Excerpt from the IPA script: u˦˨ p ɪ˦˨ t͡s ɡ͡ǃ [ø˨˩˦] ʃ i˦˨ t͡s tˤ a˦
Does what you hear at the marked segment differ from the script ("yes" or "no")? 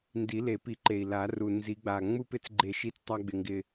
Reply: yes